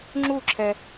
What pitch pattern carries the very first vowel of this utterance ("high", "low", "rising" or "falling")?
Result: falling